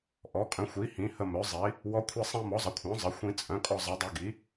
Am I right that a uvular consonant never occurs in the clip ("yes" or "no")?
yes